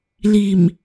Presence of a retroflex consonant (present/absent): absent